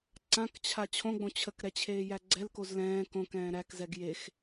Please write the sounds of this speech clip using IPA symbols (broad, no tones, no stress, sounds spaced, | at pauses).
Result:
ǀ ã k t͡ɕʰ a t͡ɕʰ õ ɡ͡b õ t͡ɕʰ ə k ɾ ɛ t͡ɕʰ eː j æ ɡ͡ǀ ɛ l k o z l ɛ̃ː k õ k ɛ̃ː ɾ æ k z ɛ ɡ j e x